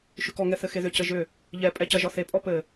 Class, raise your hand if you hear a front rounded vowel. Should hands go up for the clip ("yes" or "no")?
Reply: yes